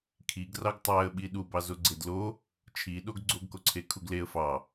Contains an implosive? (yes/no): yes